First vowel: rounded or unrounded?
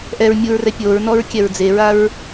unrounded